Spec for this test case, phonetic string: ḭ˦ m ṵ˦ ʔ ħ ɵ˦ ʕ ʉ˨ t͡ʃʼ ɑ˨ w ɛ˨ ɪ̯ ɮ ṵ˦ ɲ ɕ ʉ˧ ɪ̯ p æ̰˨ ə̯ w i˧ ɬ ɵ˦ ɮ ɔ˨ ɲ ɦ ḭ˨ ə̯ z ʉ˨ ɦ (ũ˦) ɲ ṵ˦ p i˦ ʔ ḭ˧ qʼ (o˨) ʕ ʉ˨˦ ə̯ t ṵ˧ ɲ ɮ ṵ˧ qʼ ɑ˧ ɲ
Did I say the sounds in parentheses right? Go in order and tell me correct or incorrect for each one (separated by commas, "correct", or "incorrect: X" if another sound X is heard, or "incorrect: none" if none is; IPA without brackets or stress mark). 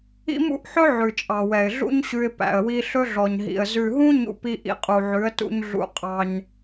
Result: correct, incorrect: u˨